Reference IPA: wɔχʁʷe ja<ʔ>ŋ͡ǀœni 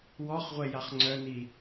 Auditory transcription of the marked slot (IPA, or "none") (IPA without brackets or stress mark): χ